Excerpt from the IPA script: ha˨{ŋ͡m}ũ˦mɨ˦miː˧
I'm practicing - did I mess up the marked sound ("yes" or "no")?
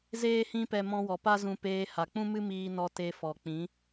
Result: yes